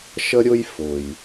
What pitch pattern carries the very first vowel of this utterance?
high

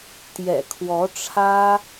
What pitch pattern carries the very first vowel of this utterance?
low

